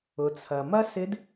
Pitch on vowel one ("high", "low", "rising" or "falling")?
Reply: low